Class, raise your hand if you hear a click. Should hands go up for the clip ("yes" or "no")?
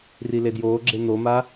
yes